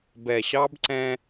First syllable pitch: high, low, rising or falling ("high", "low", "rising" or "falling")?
low